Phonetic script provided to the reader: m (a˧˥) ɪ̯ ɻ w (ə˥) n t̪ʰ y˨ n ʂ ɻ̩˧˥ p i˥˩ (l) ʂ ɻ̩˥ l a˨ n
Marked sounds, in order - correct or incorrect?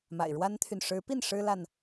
incorrect: a̰˨˩, incorrect: a˥, incorrect: n

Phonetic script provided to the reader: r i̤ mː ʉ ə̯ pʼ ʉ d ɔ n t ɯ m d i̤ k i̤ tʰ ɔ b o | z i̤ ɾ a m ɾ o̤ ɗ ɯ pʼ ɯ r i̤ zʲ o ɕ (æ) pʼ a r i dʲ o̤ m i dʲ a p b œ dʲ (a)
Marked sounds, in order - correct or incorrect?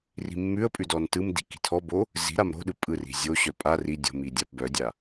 incorrect: œ, correct

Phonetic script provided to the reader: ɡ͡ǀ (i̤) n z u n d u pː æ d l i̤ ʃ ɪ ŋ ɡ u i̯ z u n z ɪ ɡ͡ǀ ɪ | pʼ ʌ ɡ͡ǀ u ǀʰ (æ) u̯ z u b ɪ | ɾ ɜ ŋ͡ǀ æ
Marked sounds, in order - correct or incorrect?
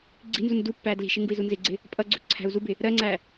correct, incorrect: æ̤

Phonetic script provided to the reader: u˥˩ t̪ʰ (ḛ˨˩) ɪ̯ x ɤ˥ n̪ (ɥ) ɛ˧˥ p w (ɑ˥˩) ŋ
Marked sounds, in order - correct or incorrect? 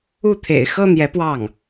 correct, incorrect: j, correct

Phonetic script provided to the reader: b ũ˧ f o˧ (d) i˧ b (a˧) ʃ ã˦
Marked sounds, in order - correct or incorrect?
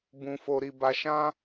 incorrect: ɾ, correct

